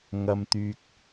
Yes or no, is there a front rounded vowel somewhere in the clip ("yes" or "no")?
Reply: yes